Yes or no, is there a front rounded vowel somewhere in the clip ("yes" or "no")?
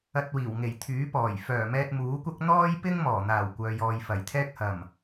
yes